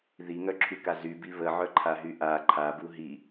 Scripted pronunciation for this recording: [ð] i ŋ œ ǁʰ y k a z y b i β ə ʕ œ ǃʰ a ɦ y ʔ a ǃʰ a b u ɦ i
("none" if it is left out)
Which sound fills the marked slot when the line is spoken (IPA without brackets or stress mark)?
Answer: ð